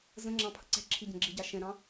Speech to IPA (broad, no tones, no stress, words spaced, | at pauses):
zə̃ŋ͡ǁɑ̃ pʰəǀɛ̤ǁʰi ɟə̃ɡ͡ǁiɟɑ ʃɛ̃ɾɑ̃